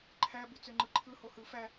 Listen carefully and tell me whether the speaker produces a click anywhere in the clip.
yes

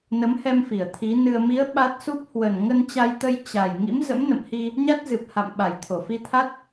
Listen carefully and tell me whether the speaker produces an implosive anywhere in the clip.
yes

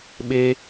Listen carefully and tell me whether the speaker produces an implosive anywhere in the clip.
yes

